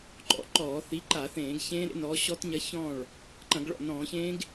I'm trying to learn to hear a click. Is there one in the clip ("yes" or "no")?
yes